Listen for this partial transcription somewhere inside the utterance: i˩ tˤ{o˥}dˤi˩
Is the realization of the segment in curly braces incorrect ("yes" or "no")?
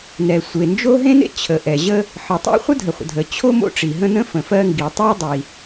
no